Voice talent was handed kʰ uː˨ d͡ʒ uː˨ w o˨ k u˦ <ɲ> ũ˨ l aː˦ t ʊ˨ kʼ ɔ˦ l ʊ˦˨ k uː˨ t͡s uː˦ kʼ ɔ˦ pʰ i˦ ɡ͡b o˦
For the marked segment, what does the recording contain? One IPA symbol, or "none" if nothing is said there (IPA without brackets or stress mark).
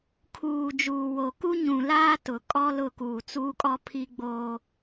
ɲ